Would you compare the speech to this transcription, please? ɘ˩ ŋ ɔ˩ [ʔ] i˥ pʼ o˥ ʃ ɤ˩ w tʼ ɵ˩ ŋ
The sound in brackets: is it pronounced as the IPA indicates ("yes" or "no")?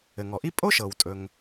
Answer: yes